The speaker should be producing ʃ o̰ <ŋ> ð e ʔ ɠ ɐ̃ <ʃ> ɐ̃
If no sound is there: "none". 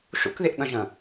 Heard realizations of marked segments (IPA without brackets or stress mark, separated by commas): k, ʒ